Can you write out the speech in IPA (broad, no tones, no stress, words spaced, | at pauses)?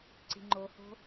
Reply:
ǀi̤ŋ͡ǃoho̤